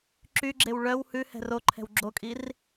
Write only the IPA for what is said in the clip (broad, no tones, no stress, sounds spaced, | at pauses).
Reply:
ǁ y ɡ͡ǁ e w ɭ œ w h ʉ h ɛ̤ r o ǃʰ ɛ̤ w ɡ͡ǁ o kʼ i r